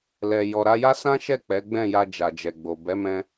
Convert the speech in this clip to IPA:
lɛ˨ jɔ˨ɾa˧ja˦ sã˦ʃɛ˦˨ k͡pɛ˨˦ɡ͡bɛ̃˦˨ja˧ d͡ʒa˨d͡ʒɛ˨ɡ͡bo˨ bɛ˨˦mɛ̃˧

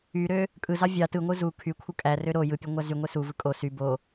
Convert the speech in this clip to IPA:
yɾø | kʼɯzɑ vʲɑ tɯŋʷɯ zu kʰykʷʰɯ kʼærø ɾo jɯpʲe ŋʷæzyŋʷe suvɯ kʼo sy bo

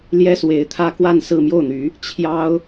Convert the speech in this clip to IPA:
ljɛ˥swe˧˥ɪ̯t̪ʰä˥ kwa˥˧nsɹ̩˥˧ mjo˥˩ʊ̯n̪y˧˥ | t͡ɕʰjɑ˥ʊ̯

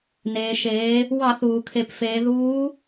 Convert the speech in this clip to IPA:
neː˩ʃeː˩˧ | wɑ˧˩˧θuː˩kʰe˩˧p feː˩˧ðuː˧˥

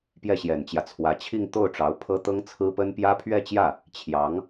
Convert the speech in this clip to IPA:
pjɛ˥˩ɕjɛ˨˩nt͡ɕjä˦t͡sʰwä˧˥ t͡ɕʰi˥˧ŋt̪o˥˩ʊ̯ʈ͡ʂɑ˧˥ʊ̯pʰɤ˥ t̪ɤ˥ŋt͡sʰɹ̩˥pə˥n pjä˥pʰɥɛ˥˧t͡ɕjä˥˩ | t͡ɕʰjɑ˧˥ŋ

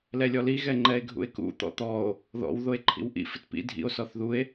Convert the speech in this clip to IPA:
lɛlʲɔli ɣɛŋ͡ǃɛe̯ɡʱṵe̯kṵ t̪ɔ̰t̪ɔo̯ | ðɔ̰w ðoe̯ǃʰḭwʔḭ fɪtpḭ dʱḭo̯ sɔθðue̯

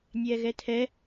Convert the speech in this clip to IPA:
nʲɛːɣɛtʰɛ

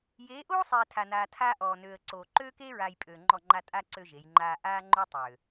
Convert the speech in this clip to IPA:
jeː˨˦ʔoː˦sˤeː˨ tʰa˨naː˨tʰaː˦ ʔɔː˨nøː˨ə̯ǀoː˨ ǃøː˦keː˦ɹaː˨j pʼøː˨ŋ͡ǃɔ˦˨ŋ͡ǃa˦ tʼa˦ ǀø˦ʒe˨˦jŋ͡ǃaː˦ ʔaː˦ŋ͡ǃo˦tˤøː˨

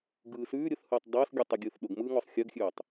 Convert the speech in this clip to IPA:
ɡɯːsʉː ɾʲʊθhɯːtˤ dˤʊːsɡʲɯ tˤʉɡʲɯːθɗʊɡ mɯːŋɔsˤxʲœɡxʲʉːtˤ

